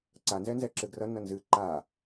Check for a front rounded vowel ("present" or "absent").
absent